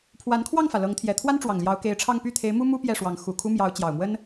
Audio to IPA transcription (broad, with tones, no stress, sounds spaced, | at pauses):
pʰ w a˧˥ n kʰ w ɑ˥˩ ŋ f ä˩ l ɤ˧˥ ŋ t̪ʰ j ɛ˨˩ t̪ʰ w a˥ n ʈ͡ʂ w ɑ˨˩ ŋ l j ɑ˧˥ ʊ̯ k e˧˥ ɪ̯ ʈ͡ʂʰ ɑ˥˧ ŋ p y˥˩ t̪ʰ e˧˥ ɪ̯ m u˥ m u˥ p j ɛ˥˩ ʂ w ɑ˧˥ ŋ x u˨˩ kʰ u˥ m j ɑ˧˥ ʊ̯ t͡ɕ j ɑ˨˩ ʊ̯ m w ə˥ n